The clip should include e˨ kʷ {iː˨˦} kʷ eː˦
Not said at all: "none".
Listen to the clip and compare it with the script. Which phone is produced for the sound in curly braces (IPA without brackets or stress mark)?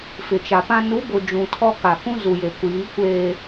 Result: iː˨˦